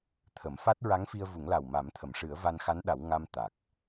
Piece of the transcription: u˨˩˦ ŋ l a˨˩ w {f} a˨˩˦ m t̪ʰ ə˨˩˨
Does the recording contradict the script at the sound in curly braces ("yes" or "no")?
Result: yes